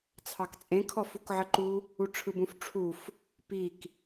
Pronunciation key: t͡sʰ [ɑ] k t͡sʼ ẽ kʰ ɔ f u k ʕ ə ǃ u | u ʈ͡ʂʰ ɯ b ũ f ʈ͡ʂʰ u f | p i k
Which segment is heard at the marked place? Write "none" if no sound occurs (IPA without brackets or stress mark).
ɑ